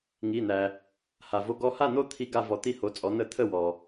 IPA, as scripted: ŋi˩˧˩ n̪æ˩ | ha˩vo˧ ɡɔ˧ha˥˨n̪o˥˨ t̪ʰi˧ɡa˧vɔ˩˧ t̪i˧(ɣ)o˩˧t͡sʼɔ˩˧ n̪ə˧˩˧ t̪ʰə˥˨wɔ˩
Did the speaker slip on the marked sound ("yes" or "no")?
yes